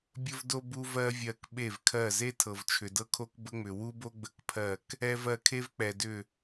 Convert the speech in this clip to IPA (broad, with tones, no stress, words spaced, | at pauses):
bʲə˦vdo˦ bu˦vɜ˦vʲɜ˧˩k ɓe˧˩vkʰɜ˧˩ze˦ tʰɤ˩vt͡ʃʰʏ˩dɤ˦kʰo˦k bə˦ŋ͡mʏ˩ wu˦bo˦ɡ͡bə˧˩kpʰɜ˧˩k | ɛ˦v ɜ˧˩kʰe˦vk͡pɛ˩ dʏ˧˩